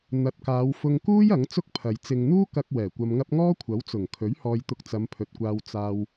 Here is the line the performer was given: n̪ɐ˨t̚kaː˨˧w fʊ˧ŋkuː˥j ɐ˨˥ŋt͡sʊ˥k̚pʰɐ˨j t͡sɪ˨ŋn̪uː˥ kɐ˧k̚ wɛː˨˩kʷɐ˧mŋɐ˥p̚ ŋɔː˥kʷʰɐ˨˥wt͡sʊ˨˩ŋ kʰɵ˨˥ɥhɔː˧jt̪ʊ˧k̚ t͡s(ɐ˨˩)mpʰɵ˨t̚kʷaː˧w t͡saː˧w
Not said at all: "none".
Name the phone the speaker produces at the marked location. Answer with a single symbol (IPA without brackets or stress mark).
ɐ˨˧